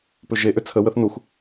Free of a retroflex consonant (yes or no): yes